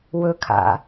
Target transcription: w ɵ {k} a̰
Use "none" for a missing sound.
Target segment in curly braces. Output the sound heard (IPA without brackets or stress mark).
kʰ